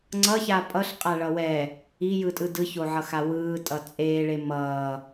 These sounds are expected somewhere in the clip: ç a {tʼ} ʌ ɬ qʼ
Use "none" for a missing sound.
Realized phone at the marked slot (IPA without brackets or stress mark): pʼ